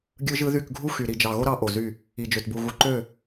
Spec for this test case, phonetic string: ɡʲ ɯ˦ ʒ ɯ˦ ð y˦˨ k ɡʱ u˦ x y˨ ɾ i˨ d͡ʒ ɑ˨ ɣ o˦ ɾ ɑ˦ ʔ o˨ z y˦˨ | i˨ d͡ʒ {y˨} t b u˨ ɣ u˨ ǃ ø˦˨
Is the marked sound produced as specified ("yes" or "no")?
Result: no